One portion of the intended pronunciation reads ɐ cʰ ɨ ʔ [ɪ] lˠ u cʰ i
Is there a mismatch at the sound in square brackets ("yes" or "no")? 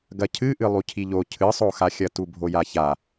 yes